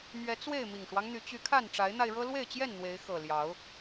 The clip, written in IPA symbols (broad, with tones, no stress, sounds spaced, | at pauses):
m ɥ ɛ˨˦ t͡s w e˥˨ ɪ̯ m i˨˩ ŋ ʂ w ɑ˦ ŋ n̪ y˨˦ t͡ɕ y˨˦ kʰ a˥˨ n ʈ͡ʂ a˨˦ ɪ̯ n̪ a˧ ɪ̯ ɻ ɤ˦ l w e˥˨ ɪ̯ t͡ɕ j ɛ˥˨ n n̪ w e˨˦ ɪ̯ x ɤ˨˩ l j ɑ˨˦ ʊ̯